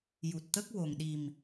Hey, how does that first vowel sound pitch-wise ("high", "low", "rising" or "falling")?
low